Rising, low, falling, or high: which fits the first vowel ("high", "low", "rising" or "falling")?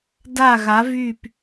falling